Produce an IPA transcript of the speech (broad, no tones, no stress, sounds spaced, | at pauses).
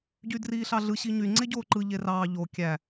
ɟ y d r iː ɬ ɑ ɮ ɯ ɕ i ɲ y ŋ͡ǀ e ɟ oː ǃ ɯ ʎ e r ɑː ʎ o kʲ æ